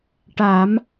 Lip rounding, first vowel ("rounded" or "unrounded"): unrounded